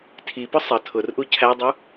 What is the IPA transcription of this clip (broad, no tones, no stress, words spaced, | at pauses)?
tʰipʊ sˤʌ tʰʊrʔu cʰædˤu